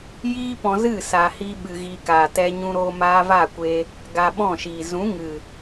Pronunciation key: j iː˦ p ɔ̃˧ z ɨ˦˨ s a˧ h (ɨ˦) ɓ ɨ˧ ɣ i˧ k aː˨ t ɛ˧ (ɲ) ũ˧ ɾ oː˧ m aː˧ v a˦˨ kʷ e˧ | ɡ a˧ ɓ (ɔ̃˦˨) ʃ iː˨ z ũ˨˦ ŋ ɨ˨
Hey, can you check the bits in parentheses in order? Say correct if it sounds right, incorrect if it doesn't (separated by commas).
incorrect, correct, correct